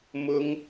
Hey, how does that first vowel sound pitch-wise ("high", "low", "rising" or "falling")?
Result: high